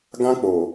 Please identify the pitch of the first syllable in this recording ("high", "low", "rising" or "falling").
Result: high